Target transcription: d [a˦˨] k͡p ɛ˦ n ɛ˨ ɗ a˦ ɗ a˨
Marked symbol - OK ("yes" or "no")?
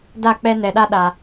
yes